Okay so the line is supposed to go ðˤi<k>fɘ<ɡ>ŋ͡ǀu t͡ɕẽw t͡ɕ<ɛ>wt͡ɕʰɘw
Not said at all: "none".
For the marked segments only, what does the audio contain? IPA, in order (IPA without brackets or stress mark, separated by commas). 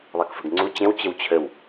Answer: k, ɡ, ɘ